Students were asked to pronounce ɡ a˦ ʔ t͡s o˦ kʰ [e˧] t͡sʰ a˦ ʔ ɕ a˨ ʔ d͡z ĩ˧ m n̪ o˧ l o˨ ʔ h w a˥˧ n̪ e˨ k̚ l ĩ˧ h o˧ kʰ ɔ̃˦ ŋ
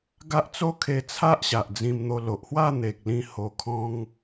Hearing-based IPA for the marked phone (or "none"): e˧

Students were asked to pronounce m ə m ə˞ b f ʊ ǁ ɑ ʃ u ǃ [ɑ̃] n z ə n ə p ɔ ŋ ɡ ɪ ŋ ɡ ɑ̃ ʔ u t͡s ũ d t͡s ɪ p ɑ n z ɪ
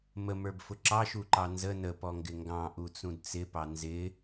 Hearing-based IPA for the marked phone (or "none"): ɑ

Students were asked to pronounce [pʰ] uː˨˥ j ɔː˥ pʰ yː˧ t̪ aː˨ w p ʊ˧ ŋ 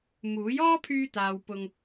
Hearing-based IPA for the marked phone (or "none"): m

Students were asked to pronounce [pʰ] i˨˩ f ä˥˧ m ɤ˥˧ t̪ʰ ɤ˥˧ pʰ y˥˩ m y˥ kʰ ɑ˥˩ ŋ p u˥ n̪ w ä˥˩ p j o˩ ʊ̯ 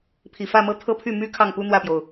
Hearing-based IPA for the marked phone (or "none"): pʰ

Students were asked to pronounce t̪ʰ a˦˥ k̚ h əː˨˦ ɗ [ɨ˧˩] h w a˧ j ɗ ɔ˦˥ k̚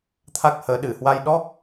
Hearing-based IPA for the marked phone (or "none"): ɨ˧˩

